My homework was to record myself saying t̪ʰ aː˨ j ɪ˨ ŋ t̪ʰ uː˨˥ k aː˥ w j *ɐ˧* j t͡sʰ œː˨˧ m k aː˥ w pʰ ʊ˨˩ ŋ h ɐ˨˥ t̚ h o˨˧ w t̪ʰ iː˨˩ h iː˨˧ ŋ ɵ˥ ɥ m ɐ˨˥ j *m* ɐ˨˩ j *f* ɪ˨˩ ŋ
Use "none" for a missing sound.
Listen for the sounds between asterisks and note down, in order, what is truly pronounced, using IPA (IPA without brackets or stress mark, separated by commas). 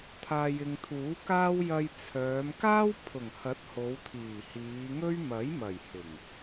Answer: ɐ˧, m, h